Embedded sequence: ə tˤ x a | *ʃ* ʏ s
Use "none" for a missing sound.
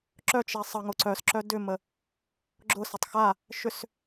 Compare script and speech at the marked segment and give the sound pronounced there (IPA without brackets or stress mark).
ʃ